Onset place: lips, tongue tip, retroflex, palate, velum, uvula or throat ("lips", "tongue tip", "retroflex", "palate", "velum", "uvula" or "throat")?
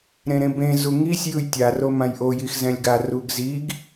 tongue tip